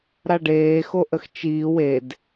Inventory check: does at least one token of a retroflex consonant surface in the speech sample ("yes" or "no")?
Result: yes